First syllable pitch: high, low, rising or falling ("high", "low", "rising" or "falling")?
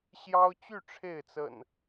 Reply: high